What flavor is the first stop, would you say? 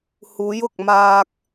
plain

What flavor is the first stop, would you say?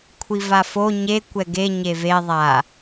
aspirated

